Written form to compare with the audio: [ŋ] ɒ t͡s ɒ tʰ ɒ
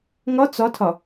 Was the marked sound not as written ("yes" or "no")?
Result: no